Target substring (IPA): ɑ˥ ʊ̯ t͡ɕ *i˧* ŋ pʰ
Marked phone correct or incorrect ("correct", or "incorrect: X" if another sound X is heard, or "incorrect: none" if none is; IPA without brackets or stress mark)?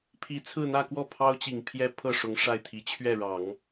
incorrect: i˨˩